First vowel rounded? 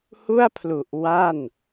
yes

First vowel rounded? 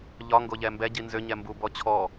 yes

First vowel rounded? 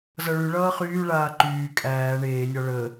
no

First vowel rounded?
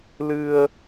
no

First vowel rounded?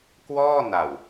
yes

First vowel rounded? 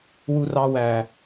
yes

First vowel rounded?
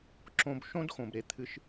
yes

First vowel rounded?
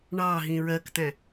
no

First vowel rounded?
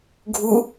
yes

